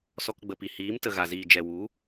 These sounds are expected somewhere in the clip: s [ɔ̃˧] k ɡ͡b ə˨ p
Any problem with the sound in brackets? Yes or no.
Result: yes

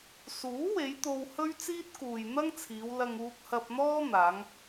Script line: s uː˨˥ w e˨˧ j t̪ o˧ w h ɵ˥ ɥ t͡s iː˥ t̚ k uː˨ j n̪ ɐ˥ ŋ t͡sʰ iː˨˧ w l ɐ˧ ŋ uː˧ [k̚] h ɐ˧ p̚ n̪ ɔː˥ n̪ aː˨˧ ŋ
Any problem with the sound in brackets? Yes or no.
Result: no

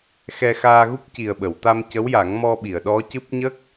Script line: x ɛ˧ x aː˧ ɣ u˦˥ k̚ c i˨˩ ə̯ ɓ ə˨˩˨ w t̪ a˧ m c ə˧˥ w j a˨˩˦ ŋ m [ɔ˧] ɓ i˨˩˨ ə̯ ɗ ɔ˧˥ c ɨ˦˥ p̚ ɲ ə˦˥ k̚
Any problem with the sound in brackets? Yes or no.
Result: no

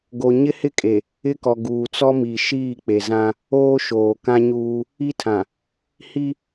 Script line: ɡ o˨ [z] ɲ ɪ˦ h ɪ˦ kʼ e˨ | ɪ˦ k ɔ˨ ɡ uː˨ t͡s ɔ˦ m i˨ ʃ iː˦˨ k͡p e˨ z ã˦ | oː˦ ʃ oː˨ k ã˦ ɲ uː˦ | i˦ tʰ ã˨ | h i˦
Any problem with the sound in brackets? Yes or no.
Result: yes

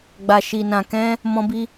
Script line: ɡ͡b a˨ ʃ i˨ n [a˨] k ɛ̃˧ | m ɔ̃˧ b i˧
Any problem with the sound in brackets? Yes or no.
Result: yes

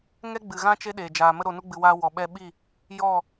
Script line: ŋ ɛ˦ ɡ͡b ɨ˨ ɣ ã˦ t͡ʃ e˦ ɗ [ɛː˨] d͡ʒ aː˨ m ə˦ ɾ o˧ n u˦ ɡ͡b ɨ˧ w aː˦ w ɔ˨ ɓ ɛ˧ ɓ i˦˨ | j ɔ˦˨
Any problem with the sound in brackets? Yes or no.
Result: yes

